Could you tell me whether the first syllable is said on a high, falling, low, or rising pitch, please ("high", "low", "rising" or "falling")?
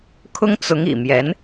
high